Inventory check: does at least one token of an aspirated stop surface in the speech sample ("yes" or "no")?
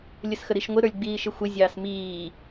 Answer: no